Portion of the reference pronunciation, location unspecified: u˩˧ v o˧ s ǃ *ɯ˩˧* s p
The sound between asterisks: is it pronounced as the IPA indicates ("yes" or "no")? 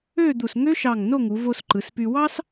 yes